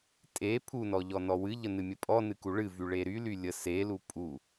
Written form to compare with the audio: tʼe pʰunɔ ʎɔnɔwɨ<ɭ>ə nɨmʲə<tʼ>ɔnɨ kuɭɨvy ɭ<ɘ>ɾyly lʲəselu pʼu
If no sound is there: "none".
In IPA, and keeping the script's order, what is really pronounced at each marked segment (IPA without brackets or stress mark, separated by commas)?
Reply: ʎ, pʼ, e